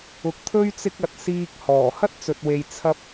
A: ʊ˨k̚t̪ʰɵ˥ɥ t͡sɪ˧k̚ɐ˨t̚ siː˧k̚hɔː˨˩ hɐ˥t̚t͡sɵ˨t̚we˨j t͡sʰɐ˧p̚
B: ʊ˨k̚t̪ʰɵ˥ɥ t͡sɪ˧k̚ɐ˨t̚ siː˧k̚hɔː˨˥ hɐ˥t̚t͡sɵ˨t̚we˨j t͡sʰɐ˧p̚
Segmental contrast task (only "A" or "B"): A